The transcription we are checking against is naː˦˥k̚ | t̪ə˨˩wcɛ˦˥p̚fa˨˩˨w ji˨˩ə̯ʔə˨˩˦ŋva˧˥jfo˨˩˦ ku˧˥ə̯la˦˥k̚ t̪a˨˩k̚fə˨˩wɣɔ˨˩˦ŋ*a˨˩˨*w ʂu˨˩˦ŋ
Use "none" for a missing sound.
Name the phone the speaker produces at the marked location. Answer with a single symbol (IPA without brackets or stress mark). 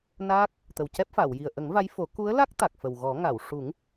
a˨˩˨